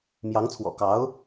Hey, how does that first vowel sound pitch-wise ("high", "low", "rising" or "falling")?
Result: rising